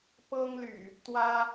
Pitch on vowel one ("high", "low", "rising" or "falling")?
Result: high